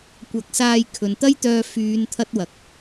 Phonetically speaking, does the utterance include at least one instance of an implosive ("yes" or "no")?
no